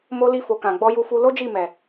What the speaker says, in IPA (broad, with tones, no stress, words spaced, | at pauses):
mo˧li˧fo˨kã˨ ɡ͡bɔ˧ju˧fu˧ lo˦d͡ʒi˦˨ mɛ˨